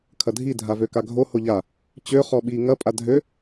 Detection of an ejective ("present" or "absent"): present